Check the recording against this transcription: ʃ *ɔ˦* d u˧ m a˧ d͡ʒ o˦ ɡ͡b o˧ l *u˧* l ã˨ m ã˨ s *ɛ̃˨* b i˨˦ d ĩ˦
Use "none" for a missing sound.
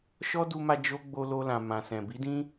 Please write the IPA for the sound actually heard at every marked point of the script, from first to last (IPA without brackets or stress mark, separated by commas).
ɔ˦, o˧, ɛ̃˨